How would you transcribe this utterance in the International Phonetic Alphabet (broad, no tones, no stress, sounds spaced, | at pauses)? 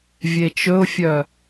vʲ e t͡ʃ ɵ ʊ̯ fʲ œ